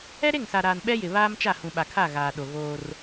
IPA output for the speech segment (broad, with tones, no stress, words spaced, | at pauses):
ɛ˦ɾe˦˨ŋsa˨ɾaː˨n ɓɛ˦jɪ˨ βaː˦mt͡ʃa˦˨ hũ˨ɓa˨kʰa˦˨ ɣaː˨ɗo˨ ɣoː˦r